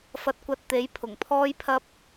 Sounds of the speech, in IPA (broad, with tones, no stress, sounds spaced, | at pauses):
f ɐ˧ t̚ kʷ ɐ˧ t̚ t̪ e˨˥ j pʰ ʊ˨˩ ŋ pʰ ɔː˥ j pʰ ɐ˥ p̚